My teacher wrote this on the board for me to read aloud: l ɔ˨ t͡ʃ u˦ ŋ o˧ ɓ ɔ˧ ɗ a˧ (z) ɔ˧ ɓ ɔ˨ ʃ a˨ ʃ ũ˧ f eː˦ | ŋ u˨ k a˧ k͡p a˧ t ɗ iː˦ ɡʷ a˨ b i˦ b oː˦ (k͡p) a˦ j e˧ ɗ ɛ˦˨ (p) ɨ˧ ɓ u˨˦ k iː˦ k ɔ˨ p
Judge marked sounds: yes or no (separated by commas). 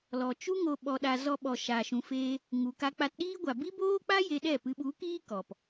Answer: yes, yes, yes